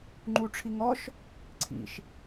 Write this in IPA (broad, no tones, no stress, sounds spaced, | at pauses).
ŋ͡ǃ u ʈ͡ʂʰ i ŋ ɔ ʃ | ǀʰ ḭ ʃ